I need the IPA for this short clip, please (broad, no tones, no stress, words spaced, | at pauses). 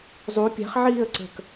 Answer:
zˤu pʲa̤χʕiːə̯ ǀə̤k